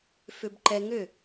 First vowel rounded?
yes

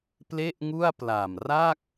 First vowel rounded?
no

